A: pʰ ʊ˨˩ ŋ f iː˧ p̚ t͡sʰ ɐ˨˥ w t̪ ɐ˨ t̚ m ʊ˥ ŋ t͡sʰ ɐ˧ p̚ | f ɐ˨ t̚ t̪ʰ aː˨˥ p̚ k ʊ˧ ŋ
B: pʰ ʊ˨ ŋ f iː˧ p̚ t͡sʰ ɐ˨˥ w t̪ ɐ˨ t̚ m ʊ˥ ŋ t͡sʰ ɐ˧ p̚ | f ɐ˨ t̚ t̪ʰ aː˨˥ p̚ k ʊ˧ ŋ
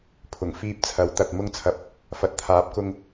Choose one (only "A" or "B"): A